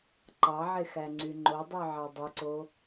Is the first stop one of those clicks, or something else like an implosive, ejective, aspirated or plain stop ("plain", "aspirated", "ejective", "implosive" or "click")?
click